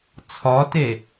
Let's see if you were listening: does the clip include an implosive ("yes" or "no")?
no